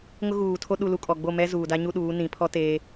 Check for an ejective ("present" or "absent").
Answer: present